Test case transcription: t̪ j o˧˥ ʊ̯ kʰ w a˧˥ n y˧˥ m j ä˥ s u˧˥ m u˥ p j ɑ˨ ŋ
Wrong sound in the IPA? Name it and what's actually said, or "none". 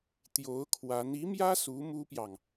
y˧˥ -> i˧˥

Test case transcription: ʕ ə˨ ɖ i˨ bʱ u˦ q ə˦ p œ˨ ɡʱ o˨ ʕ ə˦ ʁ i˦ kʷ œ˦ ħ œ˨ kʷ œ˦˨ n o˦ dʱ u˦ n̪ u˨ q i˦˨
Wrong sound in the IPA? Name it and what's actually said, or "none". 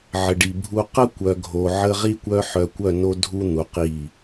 p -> kʷ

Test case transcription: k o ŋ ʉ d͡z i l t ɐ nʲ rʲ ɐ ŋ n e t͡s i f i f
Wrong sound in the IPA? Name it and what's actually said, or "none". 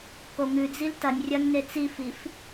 none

